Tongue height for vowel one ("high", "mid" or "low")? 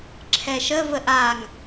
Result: mid